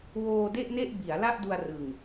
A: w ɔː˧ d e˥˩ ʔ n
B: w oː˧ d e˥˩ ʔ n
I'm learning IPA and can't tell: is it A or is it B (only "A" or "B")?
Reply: B